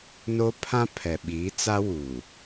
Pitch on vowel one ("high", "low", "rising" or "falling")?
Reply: high